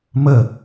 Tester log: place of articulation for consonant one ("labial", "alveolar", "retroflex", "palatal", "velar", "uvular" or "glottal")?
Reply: labial